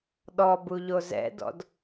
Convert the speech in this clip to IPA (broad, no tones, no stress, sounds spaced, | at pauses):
ɗ ɔ b u ʎ o z ɛ̰ d ɔ̰ d